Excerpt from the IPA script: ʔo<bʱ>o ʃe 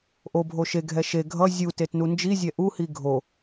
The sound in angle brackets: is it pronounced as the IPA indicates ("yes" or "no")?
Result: yes